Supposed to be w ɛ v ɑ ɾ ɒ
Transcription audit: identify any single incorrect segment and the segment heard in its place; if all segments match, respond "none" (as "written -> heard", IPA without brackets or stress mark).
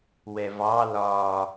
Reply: ɾ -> l